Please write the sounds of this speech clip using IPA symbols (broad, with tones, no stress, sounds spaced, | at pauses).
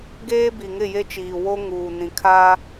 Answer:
ɡ eː˦ b i˨ ŋ ɪ˦˨ j e˦ t͡ʃ iː˨ w o˦ ŋ uː˨ n ĩ˨ kʰ aː˦